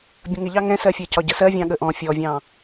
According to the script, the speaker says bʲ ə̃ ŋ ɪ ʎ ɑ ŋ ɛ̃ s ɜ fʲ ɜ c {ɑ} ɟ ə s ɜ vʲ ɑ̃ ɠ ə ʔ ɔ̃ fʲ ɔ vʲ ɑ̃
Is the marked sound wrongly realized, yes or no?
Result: yes